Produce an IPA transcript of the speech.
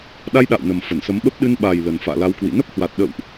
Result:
ɗ a˧ j ɗ a̰ː˧˨ w n ə˨˩ m f ə˧˩ n s ə˨˦ m ɓ ə˦˥ p̚ ɗ ɨ˧ n ɓ a˨˩ j l ə˨˩ n f a̰ː˧˨ l a˨˦ w k w ḭ˧˨ n ə˦˥ p̚ h w a˨˩ t̚ ɗ ə̰˧˨ w ʔ

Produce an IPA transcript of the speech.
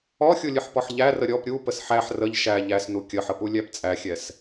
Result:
ɔ xʲ u lʲ ɨ ħ p ɔ ħ ʎ æ r ə ɾʲ ɔ p ɾʲ u p ə s ħ æ ħ r ə ʎ ʃ æ ʎ æ s n u kʲ ə ħ ə p u lʲ æ p t͡sʼ æ xʲ ɛ s

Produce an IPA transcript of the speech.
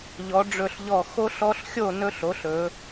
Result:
ʎ ɔ˩˧ ɖ͡ʐ ɵ˧˩ ɬ ʎ ɔ˧˩ x o˦ ɬ ɔ˦ ɬ xʲ o˥˨ n ɵ˦ ɬ o˩˥ ɬ ɵ˩˧

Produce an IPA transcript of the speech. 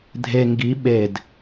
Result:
dʱ e ŋ ɡ i ɓ e d

